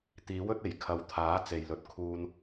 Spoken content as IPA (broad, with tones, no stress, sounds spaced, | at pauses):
t̪ iː˨˥ w ɵ˨˥ t̚ e˨˩ j kʰ ɐ˨˥ w t̪ʰ aː˨˥ t͡s e˨ j l ɵ˧ t̚ kʰ uː˧ n